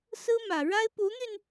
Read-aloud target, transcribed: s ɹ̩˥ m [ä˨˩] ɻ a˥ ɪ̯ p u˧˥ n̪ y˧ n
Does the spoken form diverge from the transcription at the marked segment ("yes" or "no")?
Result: no